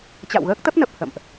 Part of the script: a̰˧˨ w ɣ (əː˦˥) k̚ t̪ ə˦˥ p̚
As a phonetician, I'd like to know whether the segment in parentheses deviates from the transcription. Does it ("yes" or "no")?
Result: no